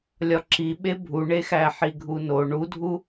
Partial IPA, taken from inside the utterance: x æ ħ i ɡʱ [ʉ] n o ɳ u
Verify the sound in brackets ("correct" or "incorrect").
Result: incorrect